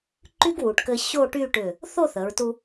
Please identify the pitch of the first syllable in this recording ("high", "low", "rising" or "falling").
high